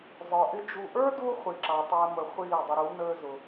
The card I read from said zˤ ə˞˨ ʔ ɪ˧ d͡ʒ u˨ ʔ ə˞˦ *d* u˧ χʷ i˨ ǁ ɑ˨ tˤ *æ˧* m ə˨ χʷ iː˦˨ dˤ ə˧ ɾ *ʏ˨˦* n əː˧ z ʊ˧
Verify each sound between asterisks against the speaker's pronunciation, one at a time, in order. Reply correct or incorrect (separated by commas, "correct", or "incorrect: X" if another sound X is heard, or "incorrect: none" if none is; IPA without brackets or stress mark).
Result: correct, correct, incorrect: u˨˦